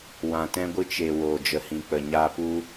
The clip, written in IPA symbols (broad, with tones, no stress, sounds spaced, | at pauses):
w ã˨ t ɛ̃˧ ɡʷ ɨ˧ t͡ʃ e˨ w oː˨ d͡ʒ ə˨ h ĩ˨ k͡p ə˨ ɲ aː˧ p u˧